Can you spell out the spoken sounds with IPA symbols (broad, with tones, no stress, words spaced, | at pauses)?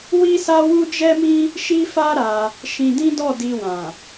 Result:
wi˦sa˦wu˦ d͡ʒɛ˦mĩ˦ | ʃi˦fa˦ ɾa˧ | ʃĩ˧dĩ˦dɔ˦˨ di˧wã˨